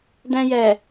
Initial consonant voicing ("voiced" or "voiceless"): voiced